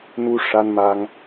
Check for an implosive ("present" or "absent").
absent